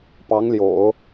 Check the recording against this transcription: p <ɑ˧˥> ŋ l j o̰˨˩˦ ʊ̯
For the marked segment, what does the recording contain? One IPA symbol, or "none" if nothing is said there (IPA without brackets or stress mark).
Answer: ɑ˧˥